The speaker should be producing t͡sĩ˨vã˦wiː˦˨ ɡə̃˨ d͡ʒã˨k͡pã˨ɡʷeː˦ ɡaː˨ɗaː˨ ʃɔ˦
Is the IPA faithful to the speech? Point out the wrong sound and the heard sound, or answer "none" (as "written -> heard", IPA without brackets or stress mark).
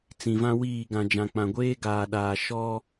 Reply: ə̃˨ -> ã˨